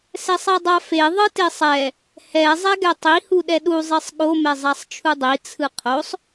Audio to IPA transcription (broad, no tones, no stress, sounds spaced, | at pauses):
s ɛ sˤ ɛ dˤ a f e ðˤ ɯ t e sˤ ɛ | h ɛ zˤ ɛ ɡ ɛ tˤ i h u ɗ ɛ ɗ u zˤ i sˤ ɠ o m ɛ zˤ a sˤ t͡ʃʰ u dˤ i t͡sʰ ɯ qʰ o sˤ